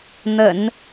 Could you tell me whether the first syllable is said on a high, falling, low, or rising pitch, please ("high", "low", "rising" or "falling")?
low